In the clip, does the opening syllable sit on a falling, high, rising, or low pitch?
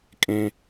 low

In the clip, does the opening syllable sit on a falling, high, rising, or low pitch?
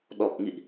low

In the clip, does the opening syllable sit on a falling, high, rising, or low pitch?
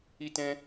high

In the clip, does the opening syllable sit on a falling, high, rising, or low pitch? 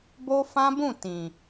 high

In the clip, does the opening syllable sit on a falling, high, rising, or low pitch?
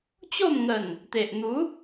falling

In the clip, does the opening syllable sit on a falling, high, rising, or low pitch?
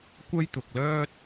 high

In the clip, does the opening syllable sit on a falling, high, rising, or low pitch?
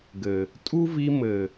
low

